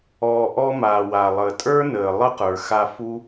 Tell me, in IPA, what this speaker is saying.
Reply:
ɔː˨ ʔ ɔ˧ m aː˨ w a˨ lˠ əː˨ tʼ ə˞˦ n əː˨ lˠ ə˦ q ə˞˨ x a˧ f u˦

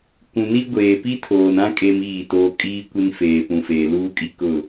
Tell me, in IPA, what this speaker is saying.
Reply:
kʷ ũ˨ n i˦ ɡʷ eː˨ p i˦ tʰ oː˨ n ã˦ kʼ e˦ m iː˦˨ t oː˦ kʼ iː˦ kʷ i˦ n f eː˨ p ũ˨ f eː˨ l uː˦ kʼ i˦ k ʊ˦˨

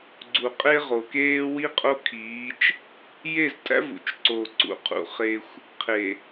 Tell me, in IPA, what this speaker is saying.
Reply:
ɡ͡ǀ u˨ qʼ e˦ ʁ oː˨ k eː˦ w i˦ qʼ o˦ kʰ iː˨˦ t͡ʃ | j e˦˨ z tʼ æ̰˦ v ṵ˨ t͡ʃ ǀ oː˨ ǀ ṵ˨ qʰ ṵ˨ χ e˦ xʷ | qʰ e˨

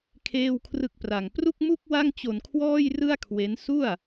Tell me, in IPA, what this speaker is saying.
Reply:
kʰ eː˥˩ w kʰ r ɯ˥˩ k̚ p r a˧ ŋ p r u˥˩ k̚ m u˥˩ k̚ w a˥˩ ŋ t͡ɕ o˧ n kʰ w ɔː˥˩ j r ɯ˥˩ a̯ kʰ w e˦˥ n s u˥˩ a̯

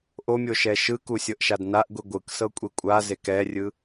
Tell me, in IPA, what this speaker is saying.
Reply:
ʔ o mʲ o ʃ ɛ ʃ ɯ k u sʲ ɤ ʔ ʃ a d n a ʔ ɡʷ i ɡʷ ɯ k s ɤ kʷʼ e kʷʼ a z e k ɛ rʲ ɯ

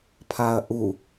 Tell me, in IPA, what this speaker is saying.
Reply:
pʰ a ɐ̯ ʔ u

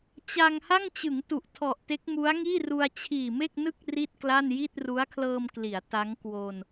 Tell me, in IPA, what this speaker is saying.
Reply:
t͡ɕ a˧ ŋ h a˥˩ ŋ t͡ɕ ɯ˩˦ ŋ t u˨˩ ʔ tʰ ɔ˨˩ ʔ t e˦˥ k̚ m u˦˥ a̯ ŋ iː˥˩ r u˧ a̯ t͡ɕʰ iː˨˩ m e˥˩ k̚ n ɯ˥˩ k̚ r i˥˩ t̚ k l a˥˩ n j i˥˩ t̚ r u˦˥ a̯ kʰ l ɤː˧ m k l i˩˦ a̯ t a˦˥ ŋ k w o˧ n

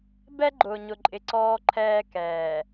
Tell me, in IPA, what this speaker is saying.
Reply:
b ɛ˦ ɡ͡ǃ ʊː˨ ɲ ʊ˨ ǃʼ ɪ˨ ǀ ɔː˦ ǃʰ ɛː˦ k ɛː˨

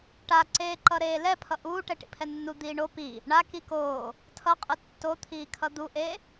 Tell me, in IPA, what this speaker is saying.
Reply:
ʈ a ǀ eː ǃ ʌ ɾ eː l ɛ pʰ ʌ ʔ uː ʈ ɛ ʈ ḭ pʰ ɛ nː u d̪ iː ɳ o p i | ɳ a k i k oː | tʰ ʌ qʼ ɯ tː o t̪ʰ iː kʰ ʌ d̪ u ʔ e

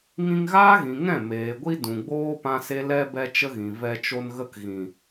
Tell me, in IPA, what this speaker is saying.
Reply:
ŋ ĩ˧ ŋ ɣ aː˦ ɣ ĩ˨ ŋ ɛ̃˦˨ m eː˨ ɡʷ i˦ d ũ˨ ɡ͡b oː˦ p ã˦ s e˦ l ɛ˧ b ɛ˦ t͡ʃ ə˦ ɣ ĩ˨ v ɛ˧ t͡ʃ o˧ n ɣ ə˦ k ɣ ĩ˨

